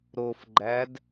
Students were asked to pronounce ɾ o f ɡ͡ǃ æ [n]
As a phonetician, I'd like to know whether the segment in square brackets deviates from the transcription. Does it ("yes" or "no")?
yes